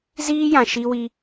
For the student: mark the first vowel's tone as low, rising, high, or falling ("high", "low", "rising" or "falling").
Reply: high